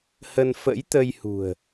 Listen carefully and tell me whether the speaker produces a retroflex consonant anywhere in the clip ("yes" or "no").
no